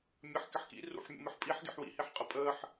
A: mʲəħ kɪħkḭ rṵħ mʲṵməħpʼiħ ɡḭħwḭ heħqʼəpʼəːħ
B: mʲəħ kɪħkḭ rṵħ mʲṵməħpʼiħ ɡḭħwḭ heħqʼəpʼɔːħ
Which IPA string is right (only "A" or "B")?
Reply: A